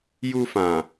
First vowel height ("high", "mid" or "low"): high